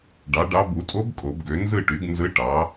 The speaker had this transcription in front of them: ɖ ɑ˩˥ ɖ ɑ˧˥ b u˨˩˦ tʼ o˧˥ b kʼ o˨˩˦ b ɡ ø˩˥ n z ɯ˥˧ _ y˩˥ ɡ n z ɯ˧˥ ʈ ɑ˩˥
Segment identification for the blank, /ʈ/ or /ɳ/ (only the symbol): ʈ